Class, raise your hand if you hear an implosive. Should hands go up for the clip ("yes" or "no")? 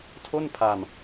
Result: no